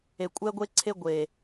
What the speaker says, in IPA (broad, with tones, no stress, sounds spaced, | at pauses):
e˨ kʷʼ ɛ˦ ɡʷ e˦ ǀʰ e˦ ɡʷ e˨